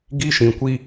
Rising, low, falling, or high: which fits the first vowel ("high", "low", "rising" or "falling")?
high